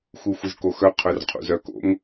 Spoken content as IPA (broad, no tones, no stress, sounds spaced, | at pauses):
x u xʷ ɨ z k o x œ qʰ œ r qʰ ṵ z œ k o̰ ŋ